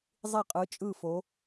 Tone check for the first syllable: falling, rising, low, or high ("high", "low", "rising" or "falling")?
falling